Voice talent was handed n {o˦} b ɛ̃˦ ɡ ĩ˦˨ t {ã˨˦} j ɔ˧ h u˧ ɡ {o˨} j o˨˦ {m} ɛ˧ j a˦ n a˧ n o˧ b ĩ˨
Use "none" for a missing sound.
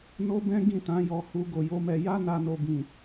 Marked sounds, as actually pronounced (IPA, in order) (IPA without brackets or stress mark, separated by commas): o˦, ã˨˦, o˨, m